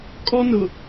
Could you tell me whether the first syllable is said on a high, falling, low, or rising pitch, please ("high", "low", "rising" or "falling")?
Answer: high